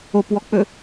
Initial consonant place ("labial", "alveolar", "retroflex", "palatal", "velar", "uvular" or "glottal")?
labial